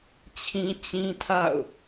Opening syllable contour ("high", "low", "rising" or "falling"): high